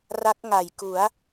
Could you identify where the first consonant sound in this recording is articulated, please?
alveolar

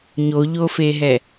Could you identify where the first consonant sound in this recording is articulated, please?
palatal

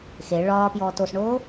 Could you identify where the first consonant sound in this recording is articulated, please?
velar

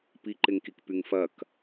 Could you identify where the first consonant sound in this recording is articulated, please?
labial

